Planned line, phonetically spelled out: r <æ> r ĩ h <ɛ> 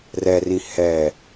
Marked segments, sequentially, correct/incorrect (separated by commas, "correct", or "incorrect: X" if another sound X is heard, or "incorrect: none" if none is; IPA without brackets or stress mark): incorrect: ɛ, correct